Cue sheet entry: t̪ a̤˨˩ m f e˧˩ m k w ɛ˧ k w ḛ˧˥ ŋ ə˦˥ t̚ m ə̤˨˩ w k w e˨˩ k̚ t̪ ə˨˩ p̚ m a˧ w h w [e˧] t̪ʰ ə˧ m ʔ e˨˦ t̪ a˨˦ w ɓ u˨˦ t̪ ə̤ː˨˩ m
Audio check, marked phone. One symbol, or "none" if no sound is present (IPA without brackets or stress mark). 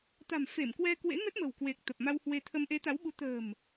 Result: e˧